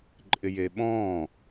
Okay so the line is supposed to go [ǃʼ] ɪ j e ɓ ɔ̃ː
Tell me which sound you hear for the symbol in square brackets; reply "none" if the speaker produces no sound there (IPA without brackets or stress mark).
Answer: ǃʼ